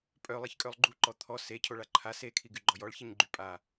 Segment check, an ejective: present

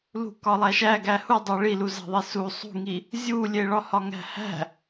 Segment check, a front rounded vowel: absent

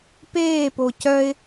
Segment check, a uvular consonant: absent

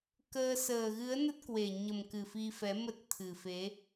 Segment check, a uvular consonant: absent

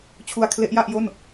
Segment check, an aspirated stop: present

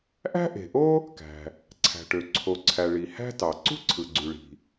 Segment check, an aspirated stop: present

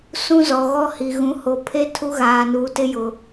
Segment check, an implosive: absent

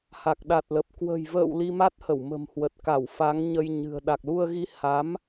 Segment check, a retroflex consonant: absent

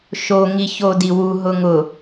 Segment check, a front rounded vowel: absent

